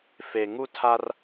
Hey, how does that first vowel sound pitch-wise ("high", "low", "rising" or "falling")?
low